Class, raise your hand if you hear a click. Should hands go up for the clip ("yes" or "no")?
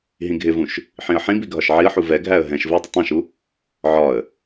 no